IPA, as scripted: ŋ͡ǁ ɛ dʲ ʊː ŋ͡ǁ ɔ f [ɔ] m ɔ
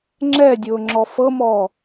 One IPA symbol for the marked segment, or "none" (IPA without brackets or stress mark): ɤ